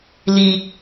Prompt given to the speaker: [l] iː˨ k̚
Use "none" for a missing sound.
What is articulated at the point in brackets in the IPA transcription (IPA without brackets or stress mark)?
l